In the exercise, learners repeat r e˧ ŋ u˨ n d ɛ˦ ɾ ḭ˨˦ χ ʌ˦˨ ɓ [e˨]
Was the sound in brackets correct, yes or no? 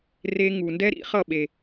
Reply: yes